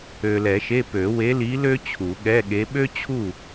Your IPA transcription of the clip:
ø˨lɛ˨˩˦ʃe˧˥˧ pø˨˩˦we˧˥li˧˥ lø˥ t͡ɕʰu˨˩˦ɠɛ˧˥˧ɠe˧˥ ɓø˥t͡ɕʰu˥˨

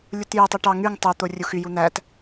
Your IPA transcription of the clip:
lʲutjøtˤu ʈɑ ŋyŋ tˤøt̪o rʲuxyju n̪æt

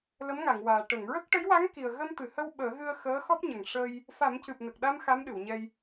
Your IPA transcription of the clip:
lə˧˥mŋa˨˩˨ŋwaː˨˩ ʈə˨˩˨ŋɹə˦˥k̚ ʈə˧˥jwa˧˥ŋki˨˩ə̯ ɣə˧mt̪ɨ˨˩hə˧w ɓəː˨˩˦ɣɨ˧ə̯ xəː˧˥xɔ˦˥p̚ɲə˨˩ŋ ʂə˧j | fa˨˩˦mcɨ˨˩p̚nə˨˩k̚ɗa˧m xa˧˥mɗɨ˨˩˨wɲɛ˧j

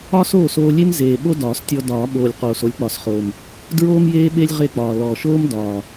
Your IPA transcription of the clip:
ɒ˥soː˥˩soː˧lʲe˥m zeː˨˩ ɓo˥dɒː˨˩˦s tʲɔ˧dɒː˨˩˦ɓoː˨˩lʲ qoː˨˩so˧lʲk͡pɒ˨˩˦sχoː˨˩m | dɹoː˥mjeː˥ɓe˥lʲ ʁe˥˩k͡pɒː˨˩ lɔ˨˩ʃoː˥m dɒː˨˩

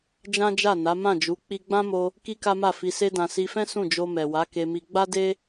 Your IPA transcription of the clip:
d͡ʒã˦d͡ʒa˦˨na˨˦ mã˦˨d͡ʒu˨˦ k͡pi˧ɡ͡bã˦mo˧ | ki˦ka˦ma˦˨ fi˧se˦dã˧ si˧fɛ̃˦ sũ˦˨d͡ʒo˧mɛ˨wa˨˦ ke˧mi˧ ɡ͡ba˦de˦

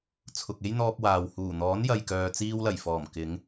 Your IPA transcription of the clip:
t͡sʰʊ˨k̚e˥jn̪ɔː˧p̚ waː˨w huː˨˩n̪ɔː˨˥njɐ˨jkœː˨ t͡siː˧wlɐ˨˩jfɔː˨˩m kɪ˨˧ŋ

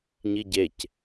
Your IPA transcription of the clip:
ɲiɟec

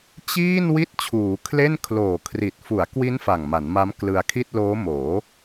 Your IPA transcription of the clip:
t͡ɕiː˥˩n wi˥˩t̚t͡ɕʰuː˩˦ kʰle˥˩n kʰloː˨˩kʰri˨˩t̚ fu˩˦a̯kwi˦˥n fa˨˩ŋma˩˦nma˦˥m klɯ˧a̯kʰi˥˩t̚ loː˦˥moː˩˦

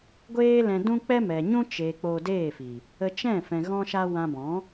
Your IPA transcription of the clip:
ɡʷeː˦lɛ̃˧ dũ˦k͡pɛ˦mɛ˨ ɲũ˦ t͡ʃeː˨ k͡poː˧deː˦˨fi˨ | ə˧t͡ʃɛ̃˦˨ fɛ̃˧ɣɔ̃˦ʃa˦ wã˧bɔ̃˨˦

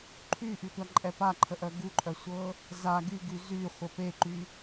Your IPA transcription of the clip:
ǃʰyʔytʷaǃʼɛ paǃʰəʔœ ɡuǃʼœsʷɤ | za ɡyɡy zyχʷə peǃy

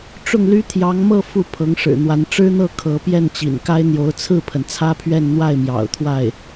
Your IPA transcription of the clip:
ʈ͡ʂʊ˥˩ŋly˥t̪ʰjɑ˧˥ŋmɤ˥˧ fu˥˩pʰɤ˧˥ŋ ʂɻ̩˨˩n̪wa˧˥n ʈ͡ʂɻ̩˥n̪ɤ˥˩ kʰɤ˧˥ pjɛ˥˩nt͡ɕḭ˨˩n ka˥ɪ̯n̪jo˧˥ʊ̯ t͡sʰɹ̩˥˩pʰə˩n t͡sʰä˥pʰɥɛ˥˧n n̪wa˥˩ɪ̯mjɑ̰˨˩ʊ̯ t̪ʰwa˥˩ɪ̯

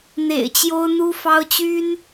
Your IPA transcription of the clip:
n̪ḛ˨˩ɪ̯t͡ɕjo˥ʊ̯n̪u˥ fɑ˥ʊ̯t͡ɕy˥n

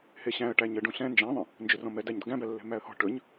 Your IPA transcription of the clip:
heɕæ̃ə̯ʈæ ɲəɖũ ɬɛ̃ nd͡ʒæ̃ðˤə̃ | nd͡ʒɵrɔ̃mɛ dæɲd̪ə̤ɡæ̃bæ lːɛ̤mæə̯hɔ̤ ʈɵɲ

